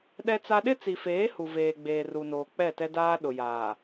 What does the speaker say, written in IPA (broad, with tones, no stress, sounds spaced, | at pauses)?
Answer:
ɗ ɛ˦ t͡s a˦ ɗ ɪ˦ t͡s i˨ f eː˨˦ h u˨ v eː˨ ɡ͡b eː˨ r u˨ n oː˨ k͡p ɛ˦˨ t ɛ˦ d aː˦ ɗ ʊ˨ j aː˨